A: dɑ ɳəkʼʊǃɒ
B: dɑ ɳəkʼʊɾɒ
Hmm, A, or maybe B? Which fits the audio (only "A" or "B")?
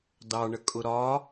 B